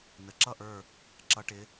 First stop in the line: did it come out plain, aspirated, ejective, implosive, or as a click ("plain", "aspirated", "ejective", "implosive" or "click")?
click